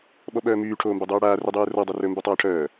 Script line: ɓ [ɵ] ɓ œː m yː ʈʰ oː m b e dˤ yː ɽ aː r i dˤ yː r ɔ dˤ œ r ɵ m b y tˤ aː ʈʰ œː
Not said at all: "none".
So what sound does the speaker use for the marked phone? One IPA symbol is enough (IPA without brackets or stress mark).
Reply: ɔ